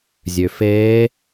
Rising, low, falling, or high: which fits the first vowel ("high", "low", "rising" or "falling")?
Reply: low